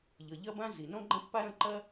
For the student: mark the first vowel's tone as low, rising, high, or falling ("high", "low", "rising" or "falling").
low